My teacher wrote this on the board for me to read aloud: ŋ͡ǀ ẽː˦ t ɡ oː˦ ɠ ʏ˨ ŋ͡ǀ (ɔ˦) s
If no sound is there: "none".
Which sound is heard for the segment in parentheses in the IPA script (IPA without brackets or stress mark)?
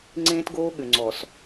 ɔ˨